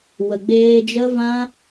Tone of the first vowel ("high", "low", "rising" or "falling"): low